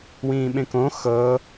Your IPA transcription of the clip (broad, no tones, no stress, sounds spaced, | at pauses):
w ĩː ɓ ẽ k õ x ɤ